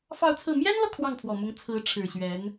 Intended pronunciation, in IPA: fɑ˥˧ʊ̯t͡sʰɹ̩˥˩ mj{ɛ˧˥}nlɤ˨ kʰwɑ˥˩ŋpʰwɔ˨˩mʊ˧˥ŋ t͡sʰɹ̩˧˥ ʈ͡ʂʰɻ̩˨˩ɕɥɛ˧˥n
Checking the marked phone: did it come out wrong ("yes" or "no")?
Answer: yes